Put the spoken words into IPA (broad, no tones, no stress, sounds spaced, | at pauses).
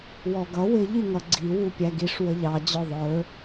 w ɔ ɡ ʌ w ɪ ʎ i ŋ ʌ ɡ͡ǀ i w u pʲ æ ɡ i ʂ w ə ʎ ɑ d͡ʑ ɔ ðˤ ə˞